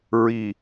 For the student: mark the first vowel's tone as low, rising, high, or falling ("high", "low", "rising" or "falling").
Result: low